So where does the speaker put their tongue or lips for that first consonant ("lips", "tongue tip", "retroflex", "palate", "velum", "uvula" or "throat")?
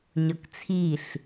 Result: palate